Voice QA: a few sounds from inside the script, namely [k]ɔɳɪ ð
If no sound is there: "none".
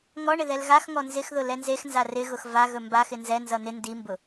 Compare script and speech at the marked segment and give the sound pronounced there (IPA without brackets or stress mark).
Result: ŋ